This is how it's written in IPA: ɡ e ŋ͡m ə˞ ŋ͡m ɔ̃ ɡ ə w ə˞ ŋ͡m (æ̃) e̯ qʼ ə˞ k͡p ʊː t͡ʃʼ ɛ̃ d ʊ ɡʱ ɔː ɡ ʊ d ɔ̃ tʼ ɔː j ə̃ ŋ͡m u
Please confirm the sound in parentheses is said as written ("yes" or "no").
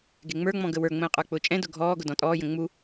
no